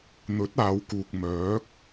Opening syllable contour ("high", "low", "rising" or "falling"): rising